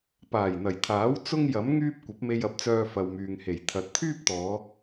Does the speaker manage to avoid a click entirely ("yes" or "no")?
yes